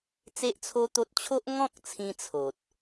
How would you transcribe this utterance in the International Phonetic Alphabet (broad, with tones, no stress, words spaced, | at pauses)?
t͡se˦ʔt͡sʰo˦t̪o˦t̚ t͡ɕʰo˦ʔ ŋɔ̃˦k̚t͡sʰĩ˧ t͡sʰo˨t̚